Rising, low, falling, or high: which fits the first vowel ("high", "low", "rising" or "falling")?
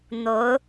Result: rising